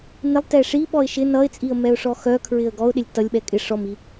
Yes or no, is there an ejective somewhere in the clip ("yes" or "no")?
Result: yes